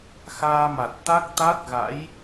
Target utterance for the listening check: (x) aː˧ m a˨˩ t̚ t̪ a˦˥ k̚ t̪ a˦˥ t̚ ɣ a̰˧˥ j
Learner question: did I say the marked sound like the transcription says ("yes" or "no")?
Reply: yes